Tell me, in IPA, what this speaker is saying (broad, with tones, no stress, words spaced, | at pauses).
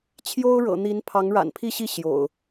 t͡ɕʰjo˦ʊ̯ɻɤ̰˨˩n̪i˨˦n pʰɑ˨˦ŋɻa̰˨˩npʰi˥˨ɕi˥˨ ɕjo̰˨˩ʊ̯